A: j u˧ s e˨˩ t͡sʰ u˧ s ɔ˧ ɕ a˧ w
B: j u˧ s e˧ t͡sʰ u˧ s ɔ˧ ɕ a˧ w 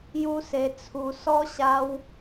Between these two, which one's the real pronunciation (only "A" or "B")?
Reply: B